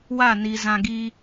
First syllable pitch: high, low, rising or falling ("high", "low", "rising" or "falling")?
falling